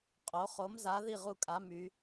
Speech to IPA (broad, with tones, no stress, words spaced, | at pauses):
qʼo˨˥ χo˨˥mza˨˥ ði˥˨ʁu˥˨kʼa˨˥ my˨˥